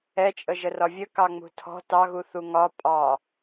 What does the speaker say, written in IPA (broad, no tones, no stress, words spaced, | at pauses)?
ɛt͡ʃʼəʒərɒ vʲəkɑ ŋ͡mṳtʰɔ̤ tɑɣuθu ŋɒ pʼɑ